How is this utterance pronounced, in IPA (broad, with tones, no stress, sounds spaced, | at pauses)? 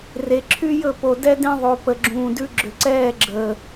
r e˨ ǁʰ y˦ j ɵ˦˨ p o˨ d ɛ˧ d ẽ˧ ðˤ o˨ p ə˨ ɡ͡ǁ ũː˨ d ʉ˧ ɡ͡ǁ ʏ˨ ǀ ɛː˦˨ ɡ͡ǁ əː˨